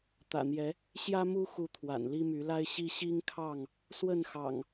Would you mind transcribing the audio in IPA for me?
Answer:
t̪ ä̰˨˩ n̪ j ɛ˨˦ | ɕ j ä˦ m u˦ x u˨˦ t̪ʰ w a̰˨˩ n l i˦ m y˨˦ l a˦ ɪ̯ ɕ i˦ ɕ i˦ ŋ kʰ ɑ˥˨ ŋ | s w ə˥˨ n x ɑ̰˨˩ ŋ

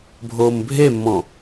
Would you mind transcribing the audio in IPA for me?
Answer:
bʱ oː m bʱ e mː ɔ̃

